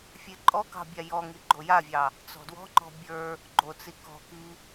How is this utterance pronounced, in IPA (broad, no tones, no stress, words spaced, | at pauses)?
fʲeǃʼɔkɑ̤ bʲajɔŋi ɡ͡ǃojavʲɑ | t͡sɔ̤dwɔ̤ŋ͡ǃɔ̤ bʲə˞ | ɡ͡ǃot͡si kɔ̤ki